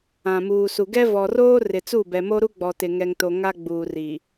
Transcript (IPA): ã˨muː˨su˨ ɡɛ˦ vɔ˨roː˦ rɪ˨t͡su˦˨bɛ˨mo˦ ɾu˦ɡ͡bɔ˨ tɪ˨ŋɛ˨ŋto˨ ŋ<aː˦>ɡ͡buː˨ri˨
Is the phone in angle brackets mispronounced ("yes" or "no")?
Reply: yes